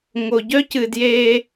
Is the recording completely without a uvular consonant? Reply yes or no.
yes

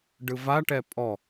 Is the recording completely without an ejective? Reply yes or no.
no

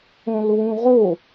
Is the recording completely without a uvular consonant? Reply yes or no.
no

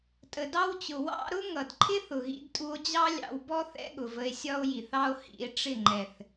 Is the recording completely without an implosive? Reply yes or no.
no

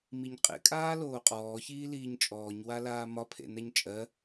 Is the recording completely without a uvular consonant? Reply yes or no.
no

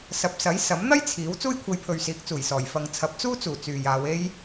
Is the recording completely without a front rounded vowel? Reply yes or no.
no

